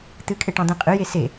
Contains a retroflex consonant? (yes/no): yes